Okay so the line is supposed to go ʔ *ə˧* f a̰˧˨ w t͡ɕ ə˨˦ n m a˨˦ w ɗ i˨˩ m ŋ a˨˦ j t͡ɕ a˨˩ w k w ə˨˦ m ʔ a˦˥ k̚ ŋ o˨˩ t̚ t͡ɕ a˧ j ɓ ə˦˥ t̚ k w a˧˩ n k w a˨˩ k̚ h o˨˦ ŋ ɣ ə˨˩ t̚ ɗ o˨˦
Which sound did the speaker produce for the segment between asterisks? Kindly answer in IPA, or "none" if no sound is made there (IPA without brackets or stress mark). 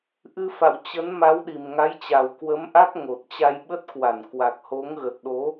ɨ˧